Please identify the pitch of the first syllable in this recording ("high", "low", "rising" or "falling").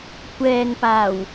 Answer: low